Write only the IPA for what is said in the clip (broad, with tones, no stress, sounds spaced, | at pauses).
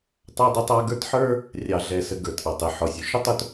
tˤ ɑ˦ dˤ ɪ˦ tˤ ɑ˦ ɡ ə˞˦ t ħ ə˞˦ | rʲ ɑ˨ ɮ ɛ˨ s ə˨ ɡ ə˞˩ t ʔ ɑ˩ tˤ ɪ˩ ħ ɔ˩ sʲ ʊ˩ ʃ ʊ˥ tˤ ʊ˦ t